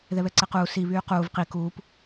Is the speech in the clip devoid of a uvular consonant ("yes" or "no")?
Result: no